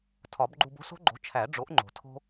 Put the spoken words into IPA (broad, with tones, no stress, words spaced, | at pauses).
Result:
tʰɒ˨˩˦bɡ͡ǃu˧b o̤˦˥so̤˦˥ɡ͡ǃo̤˩˥ t͡ʃʰæ˨˩˦ɖ͡ʐo˩˥ʔŋ͡ǃo̤˩ tʰo̤˧